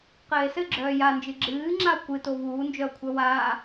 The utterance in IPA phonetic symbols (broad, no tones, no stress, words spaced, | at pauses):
qɘːe̯sɘɡ͡ǁœː jand͡ʒɨ ɡ͡ǁɨːŋ͡ǁao̯ kʷɨtov uːnd͡ʒœo̯kʷʰœ waː